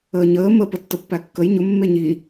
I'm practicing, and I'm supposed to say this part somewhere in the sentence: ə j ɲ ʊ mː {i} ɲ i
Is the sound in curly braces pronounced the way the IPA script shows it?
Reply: no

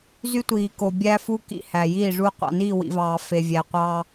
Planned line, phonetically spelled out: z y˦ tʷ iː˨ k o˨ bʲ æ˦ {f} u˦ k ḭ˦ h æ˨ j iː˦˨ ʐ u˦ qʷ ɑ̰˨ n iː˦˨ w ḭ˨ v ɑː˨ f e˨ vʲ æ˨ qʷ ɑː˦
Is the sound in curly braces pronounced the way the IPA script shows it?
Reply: yes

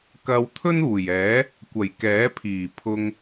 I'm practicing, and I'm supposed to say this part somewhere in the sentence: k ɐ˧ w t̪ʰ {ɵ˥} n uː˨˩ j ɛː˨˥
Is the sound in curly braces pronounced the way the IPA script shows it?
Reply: yes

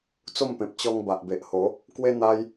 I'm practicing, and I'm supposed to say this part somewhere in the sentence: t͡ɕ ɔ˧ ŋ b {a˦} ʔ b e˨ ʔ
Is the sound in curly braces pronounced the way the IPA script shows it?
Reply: no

